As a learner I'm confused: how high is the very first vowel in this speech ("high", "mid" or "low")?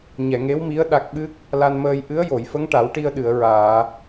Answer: mid